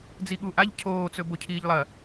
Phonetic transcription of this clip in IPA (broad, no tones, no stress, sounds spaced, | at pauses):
d͡z i ɠ u ʔ a ʎ cʰ oː t͡s ɵ b o cʰ iː ʎ lˠ ɐ